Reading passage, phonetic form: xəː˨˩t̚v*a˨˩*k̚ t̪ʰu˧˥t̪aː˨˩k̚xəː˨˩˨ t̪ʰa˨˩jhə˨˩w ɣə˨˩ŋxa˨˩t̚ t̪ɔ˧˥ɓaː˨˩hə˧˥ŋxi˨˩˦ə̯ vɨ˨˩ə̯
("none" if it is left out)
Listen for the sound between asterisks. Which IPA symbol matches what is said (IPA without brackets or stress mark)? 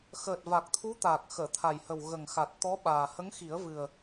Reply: a˨˩